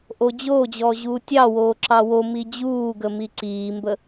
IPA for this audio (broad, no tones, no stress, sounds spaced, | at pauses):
ʔ o d͡ʑ oː d͡ʑ ɔː ʑ uː tʲ ɑ w oː ǁ ɑ w o m i d͡ʑ uː ɡ ə m i ǀ iː m b ə